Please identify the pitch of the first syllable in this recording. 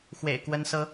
low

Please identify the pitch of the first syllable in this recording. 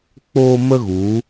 high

